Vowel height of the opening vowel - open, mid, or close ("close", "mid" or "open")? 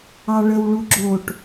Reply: open